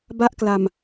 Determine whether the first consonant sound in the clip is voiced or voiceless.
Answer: voiced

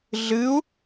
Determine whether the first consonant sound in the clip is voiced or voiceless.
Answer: voiced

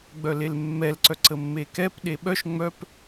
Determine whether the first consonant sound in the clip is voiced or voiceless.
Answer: voiced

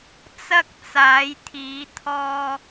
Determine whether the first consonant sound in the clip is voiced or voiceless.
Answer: voiceless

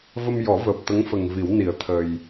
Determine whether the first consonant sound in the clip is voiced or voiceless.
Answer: voiced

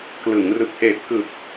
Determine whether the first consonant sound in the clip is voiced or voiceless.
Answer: voiceless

